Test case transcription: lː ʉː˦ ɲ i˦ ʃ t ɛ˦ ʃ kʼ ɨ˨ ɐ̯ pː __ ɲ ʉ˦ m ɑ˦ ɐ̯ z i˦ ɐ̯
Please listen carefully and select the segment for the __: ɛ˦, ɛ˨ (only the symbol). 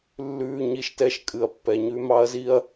ɛ˨